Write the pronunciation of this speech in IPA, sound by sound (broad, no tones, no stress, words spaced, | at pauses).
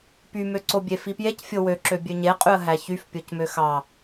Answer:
pymø ǀobʲefipjec fʲowøǁø bʲøɲeqʼyə̯ɦæ çyfpʲocmø xɑ